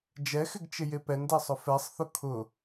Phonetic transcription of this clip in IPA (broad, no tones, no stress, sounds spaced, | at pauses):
d͡ʒ ɛ x ɪ ɡ t͡ʃ ɪ j e p ɛ n d ɛ sˤ ʊ f ɛ sˤ θ ʊ kʰ ʊ